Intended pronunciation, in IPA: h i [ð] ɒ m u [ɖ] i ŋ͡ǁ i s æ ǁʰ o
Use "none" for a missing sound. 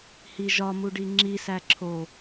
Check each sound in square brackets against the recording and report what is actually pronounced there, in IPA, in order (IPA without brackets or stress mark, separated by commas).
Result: ʒ, ɖ